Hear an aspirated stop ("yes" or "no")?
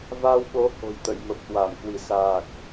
no